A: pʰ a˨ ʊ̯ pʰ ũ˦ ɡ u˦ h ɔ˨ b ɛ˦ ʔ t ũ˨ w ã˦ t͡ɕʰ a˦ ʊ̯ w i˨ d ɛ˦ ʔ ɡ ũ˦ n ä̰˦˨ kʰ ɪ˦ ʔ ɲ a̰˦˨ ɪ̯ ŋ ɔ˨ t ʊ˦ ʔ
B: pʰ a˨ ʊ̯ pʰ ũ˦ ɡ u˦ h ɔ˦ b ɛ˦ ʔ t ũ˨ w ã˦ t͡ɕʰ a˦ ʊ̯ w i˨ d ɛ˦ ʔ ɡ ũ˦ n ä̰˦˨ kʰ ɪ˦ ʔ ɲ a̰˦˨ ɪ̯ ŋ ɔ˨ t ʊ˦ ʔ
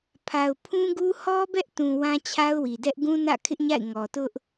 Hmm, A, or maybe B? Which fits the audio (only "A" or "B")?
B